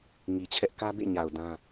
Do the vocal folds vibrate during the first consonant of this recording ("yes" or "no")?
yes